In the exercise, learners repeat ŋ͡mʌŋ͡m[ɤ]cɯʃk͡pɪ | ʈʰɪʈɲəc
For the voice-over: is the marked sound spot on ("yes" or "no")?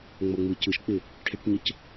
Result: no